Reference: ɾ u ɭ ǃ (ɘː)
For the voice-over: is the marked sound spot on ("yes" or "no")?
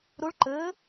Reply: yes